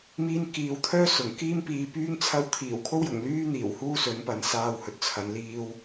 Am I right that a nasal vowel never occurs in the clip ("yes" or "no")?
yes